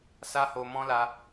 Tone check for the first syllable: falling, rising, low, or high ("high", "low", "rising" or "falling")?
high